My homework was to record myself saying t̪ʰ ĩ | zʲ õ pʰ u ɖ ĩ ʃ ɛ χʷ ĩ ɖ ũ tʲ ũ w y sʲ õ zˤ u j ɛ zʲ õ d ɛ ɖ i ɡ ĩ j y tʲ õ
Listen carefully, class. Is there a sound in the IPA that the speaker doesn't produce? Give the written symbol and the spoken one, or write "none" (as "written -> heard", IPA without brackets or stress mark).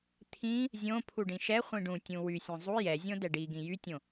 none